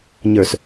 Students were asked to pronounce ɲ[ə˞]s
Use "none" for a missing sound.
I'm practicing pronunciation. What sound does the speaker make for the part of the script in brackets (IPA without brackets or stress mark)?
ə˞